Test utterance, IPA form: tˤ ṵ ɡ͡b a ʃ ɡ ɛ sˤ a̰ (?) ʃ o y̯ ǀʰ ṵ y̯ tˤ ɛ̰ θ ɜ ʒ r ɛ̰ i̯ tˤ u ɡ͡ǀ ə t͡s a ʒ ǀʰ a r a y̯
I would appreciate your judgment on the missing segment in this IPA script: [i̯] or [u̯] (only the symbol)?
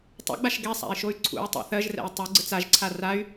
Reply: i̯